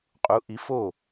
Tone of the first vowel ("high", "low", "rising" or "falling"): rising